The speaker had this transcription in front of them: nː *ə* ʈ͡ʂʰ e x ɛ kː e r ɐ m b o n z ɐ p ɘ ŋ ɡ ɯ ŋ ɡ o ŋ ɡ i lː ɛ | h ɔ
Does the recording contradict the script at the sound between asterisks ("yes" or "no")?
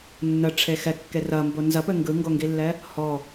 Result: no